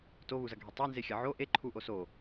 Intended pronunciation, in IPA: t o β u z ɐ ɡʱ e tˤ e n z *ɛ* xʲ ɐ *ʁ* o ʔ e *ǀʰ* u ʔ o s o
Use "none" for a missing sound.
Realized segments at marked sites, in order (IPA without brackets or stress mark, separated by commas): e, ʕ, ǃʰ